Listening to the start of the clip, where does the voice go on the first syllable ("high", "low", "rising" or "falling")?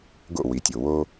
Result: falling